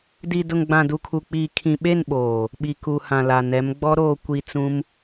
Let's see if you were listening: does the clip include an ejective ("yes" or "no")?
no